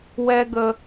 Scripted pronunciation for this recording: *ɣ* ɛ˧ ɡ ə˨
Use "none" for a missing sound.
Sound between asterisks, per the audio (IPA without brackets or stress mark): w